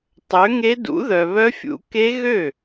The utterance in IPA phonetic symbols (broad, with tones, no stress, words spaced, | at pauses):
tˤø˨˥ŋe˦˥ dṵ˨˥ðœ˨βœ˦˥fʲṵ˨˥ ke˦˥ɣø˥˩